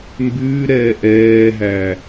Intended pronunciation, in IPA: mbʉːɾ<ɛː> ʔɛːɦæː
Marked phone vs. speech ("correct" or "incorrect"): correct